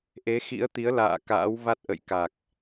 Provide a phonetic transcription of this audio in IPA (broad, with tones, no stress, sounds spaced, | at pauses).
ʔ e˨˦ x ḭ˧˥ ə̯ t̪ i˨˦ ə̯ l a̰ː˧˨ k a̰ː˧˥ w v a˦˥ t̚ ʔ ə̰˧˨ j k a˨˩ k̚